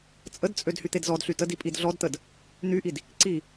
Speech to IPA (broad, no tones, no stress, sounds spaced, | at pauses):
t͡sʼ ə d t͡sʼ ø d h y t̪ e d z ɔ d ɬ y t ə d i pʼ i d ɮ ɔ d t̪ ə d | n̪ y ʔ i d | ǀ i